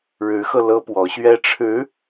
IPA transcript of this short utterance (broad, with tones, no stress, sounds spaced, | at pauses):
ɻ ɻ̩˧˥ x ɤ˧ l ɤ˥ p w ɔ˧˥ ɕ ɥ ɛ˥ ʈ͡ʂʰ ɻ̩˧˥